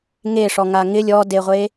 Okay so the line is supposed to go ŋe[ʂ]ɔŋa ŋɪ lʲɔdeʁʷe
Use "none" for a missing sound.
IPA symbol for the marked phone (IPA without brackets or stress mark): ʂ